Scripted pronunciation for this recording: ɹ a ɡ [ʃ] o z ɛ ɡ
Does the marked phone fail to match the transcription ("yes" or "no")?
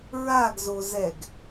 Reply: yes